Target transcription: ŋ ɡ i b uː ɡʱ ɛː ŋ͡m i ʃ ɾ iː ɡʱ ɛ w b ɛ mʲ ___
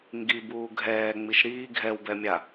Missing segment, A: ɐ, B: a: B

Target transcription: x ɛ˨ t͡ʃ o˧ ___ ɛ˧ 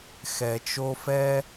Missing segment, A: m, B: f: B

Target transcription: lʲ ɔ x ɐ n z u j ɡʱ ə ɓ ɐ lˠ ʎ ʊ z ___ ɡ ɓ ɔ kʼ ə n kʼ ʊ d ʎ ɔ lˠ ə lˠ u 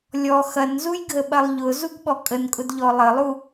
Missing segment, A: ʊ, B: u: B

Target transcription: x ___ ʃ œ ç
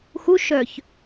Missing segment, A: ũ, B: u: B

